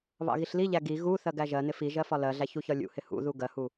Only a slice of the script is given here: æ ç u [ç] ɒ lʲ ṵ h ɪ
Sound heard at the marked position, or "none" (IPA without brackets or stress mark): ç